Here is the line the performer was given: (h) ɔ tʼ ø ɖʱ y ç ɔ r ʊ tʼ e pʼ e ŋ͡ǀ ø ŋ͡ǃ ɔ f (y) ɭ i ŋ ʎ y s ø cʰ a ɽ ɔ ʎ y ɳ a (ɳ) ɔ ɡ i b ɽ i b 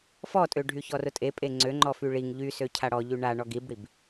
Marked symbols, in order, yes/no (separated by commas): no, yes, yes